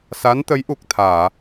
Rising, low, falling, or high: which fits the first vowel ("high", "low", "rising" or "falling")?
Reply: rising